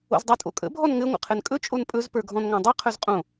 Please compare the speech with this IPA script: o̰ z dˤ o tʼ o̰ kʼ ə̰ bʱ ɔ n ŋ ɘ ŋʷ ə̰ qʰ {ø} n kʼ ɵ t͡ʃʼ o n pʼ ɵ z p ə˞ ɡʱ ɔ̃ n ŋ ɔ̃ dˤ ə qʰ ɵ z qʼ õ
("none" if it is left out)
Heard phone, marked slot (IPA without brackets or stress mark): ɘ